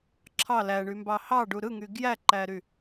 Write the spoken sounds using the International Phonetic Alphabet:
ǁʰ ɑ l æ ɳ y m b ɑ h ɑ ɖ u ɾ ɯ ŋ y ɡ j æ ǃ æ ɾ y

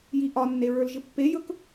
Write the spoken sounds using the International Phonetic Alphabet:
j i ʔ ɒ nː e ɹ ə˞ l ʒ ɪ pː e j ɵ k

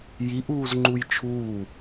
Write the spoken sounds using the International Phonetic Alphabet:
j i ʔ uː z ŋ͡ǃ u j t͡ʃʰ uː

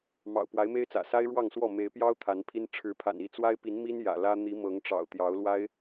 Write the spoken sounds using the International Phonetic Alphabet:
m ɑ̰˨˩ ʊ̯ p w a˨˦ ɪ̯ m e˦ ɪ̯ t͡s ä̰˨˩ s a˦ ɪ̯ ɻ w ɑ˥˨ ŋ s w ɔ˥˨ m e˨˦ ɪ̯ p j ɑ˦ ʊ̯ t̪ʰ a˨˦ n pʰ i˦ n ʈ͡ʂʰ ɻ̩˨˦ pʰ a̰˨˩ n i˥˨ t͡s w a˦ ɪ̯ p i˨˦ n m i˦ n j ä̰˨˩ l ä˦ n̪ i˨˦ m ɤ˨˦ ŋ ʈ͡ʂ ɑ̰˨˩ ʊ̯ t̪ j ɑ˨˦ ʊ̯ l w a˦ ɪ̯

